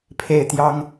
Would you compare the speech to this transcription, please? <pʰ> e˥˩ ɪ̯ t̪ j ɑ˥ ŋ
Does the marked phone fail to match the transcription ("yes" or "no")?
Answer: no